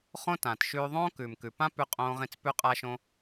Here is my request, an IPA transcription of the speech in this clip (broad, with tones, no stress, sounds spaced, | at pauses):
χ õ˦ t ãː˨ t ʃ ʉː˧ ðˤ õː˦ k ʉː˨ m k ʉ˨ p ã˦ p ʉ˧ qʼ õː˦ ʁ ĩ˦ t͡s p ʉ˧ qʼ a˧ ʃ õ˧